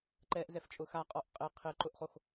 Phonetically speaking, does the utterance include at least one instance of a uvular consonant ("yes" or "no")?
yes